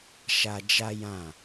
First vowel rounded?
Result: no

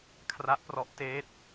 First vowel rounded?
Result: no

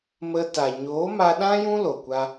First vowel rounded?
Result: no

